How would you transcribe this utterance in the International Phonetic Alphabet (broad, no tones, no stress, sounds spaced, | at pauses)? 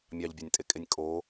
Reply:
mʲ ɑ ʎ bʲ ɑ nʲ tʼ e kʼ e nʲ kʼ o